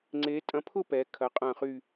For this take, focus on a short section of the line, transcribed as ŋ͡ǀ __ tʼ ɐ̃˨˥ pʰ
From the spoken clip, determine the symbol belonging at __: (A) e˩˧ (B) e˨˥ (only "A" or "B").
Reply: B